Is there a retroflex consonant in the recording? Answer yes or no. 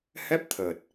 no